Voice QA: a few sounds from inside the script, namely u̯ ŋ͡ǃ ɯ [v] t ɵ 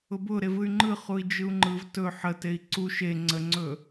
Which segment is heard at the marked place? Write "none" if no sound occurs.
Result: v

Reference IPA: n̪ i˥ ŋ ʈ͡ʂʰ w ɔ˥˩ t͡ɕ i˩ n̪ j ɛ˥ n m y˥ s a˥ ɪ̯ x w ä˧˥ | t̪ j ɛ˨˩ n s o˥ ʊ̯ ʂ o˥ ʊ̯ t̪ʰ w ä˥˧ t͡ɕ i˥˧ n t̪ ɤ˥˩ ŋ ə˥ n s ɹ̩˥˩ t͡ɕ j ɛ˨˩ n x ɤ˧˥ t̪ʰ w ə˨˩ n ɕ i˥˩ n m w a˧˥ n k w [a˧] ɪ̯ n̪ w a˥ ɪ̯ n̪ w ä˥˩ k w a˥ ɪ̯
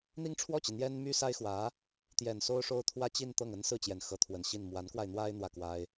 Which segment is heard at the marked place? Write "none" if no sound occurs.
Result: a˧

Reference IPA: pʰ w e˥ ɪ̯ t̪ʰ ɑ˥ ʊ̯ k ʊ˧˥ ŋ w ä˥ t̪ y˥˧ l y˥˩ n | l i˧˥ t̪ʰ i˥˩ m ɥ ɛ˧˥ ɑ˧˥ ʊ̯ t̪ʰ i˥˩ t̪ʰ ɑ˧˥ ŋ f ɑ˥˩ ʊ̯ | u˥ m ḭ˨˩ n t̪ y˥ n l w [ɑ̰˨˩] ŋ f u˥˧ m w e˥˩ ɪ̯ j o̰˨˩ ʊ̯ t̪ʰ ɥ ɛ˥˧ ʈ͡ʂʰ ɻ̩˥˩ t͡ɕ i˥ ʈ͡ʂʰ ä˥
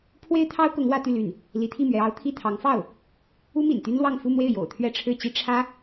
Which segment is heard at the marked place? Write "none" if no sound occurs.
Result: ɑ˥˧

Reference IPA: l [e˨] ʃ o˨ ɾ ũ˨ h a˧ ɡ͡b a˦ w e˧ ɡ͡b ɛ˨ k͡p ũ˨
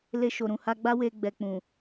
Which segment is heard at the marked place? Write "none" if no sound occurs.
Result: e˧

